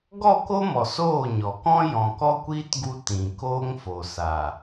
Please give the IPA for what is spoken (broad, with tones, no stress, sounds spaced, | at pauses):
ɡ ɔ˦˨ k o˦ m ɔ˨ s oː˦˨ ɲ ɔ˨ k ɔ̃˦ j ɔ̃˨ k ɔ˦ kʷ iː˦ t ɡ u˧ t ĩ˨ k oː˦ ŋ f o˨ s a˨